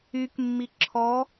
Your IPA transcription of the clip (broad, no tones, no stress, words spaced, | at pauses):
ykmːi ǁʰɔ